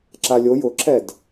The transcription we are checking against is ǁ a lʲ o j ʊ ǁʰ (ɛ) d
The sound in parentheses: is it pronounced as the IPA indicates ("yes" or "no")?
yes